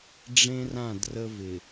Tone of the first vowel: high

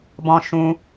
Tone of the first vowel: high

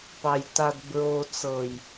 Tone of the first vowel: high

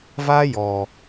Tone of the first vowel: high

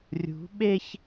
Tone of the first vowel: rising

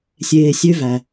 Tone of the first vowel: low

